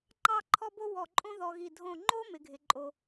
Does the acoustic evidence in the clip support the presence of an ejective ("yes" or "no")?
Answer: yes